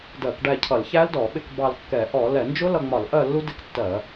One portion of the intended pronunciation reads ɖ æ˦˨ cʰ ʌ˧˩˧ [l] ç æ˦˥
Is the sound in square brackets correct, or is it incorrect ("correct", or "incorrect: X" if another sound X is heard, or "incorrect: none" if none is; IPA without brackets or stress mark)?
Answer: correct